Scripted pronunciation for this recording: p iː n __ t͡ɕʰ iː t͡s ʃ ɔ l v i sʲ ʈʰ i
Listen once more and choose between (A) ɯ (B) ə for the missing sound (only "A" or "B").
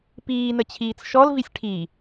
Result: B